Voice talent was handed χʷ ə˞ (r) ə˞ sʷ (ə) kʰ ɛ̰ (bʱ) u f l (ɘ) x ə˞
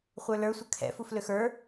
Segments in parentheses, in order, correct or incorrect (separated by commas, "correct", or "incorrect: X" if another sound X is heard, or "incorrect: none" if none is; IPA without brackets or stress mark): incorrect: l, correct, incorrect: f, incorrect: ø